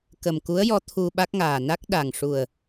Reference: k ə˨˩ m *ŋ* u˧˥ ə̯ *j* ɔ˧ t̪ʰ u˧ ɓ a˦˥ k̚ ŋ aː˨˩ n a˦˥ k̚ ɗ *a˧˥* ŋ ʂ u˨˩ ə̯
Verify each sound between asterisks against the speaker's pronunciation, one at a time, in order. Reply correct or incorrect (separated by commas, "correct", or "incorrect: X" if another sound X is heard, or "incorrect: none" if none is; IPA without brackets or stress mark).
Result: incorrect: k, correct, incorrect: a˨˩